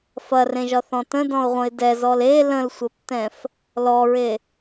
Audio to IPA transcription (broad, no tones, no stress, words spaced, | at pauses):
fɐrẽʒɒθɔ̃ tə̃dɔ̃ʊ̯ʁʷə̃ɪ̯ dɛzɔl e lə̃lsʷɐptɛ̃f | lɔɹe